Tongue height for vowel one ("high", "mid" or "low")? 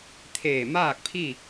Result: mid